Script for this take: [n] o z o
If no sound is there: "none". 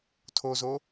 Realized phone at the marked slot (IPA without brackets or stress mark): tʰ